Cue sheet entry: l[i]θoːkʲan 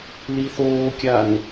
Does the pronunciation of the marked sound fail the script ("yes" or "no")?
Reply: no